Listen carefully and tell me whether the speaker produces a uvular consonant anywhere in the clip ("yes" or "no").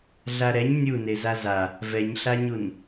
no